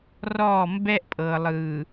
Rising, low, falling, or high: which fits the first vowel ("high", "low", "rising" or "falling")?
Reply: falling